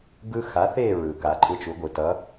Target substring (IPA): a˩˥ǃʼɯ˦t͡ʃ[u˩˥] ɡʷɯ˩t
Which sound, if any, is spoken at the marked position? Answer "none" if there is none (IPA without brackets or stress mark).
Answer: u˩˥